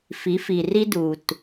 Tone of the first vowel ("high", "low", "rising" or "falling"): rising